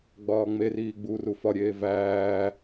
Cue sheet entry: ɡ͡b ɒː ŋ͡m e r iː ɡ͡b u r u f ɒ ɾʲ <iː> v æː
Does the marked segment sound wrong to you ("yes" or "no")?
yes